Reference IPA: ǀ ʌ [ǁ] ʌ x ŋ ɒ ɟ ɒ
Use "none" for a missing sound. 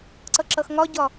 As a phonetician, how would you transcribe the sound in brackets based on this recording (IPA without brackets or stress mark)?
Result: ǁ